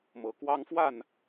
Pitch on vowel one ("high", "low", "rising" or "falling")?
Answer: rising